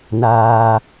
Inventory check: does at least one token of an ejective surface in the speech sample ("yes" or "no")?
no